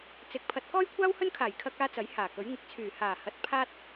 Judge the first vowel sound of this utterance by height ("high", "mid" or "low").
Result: high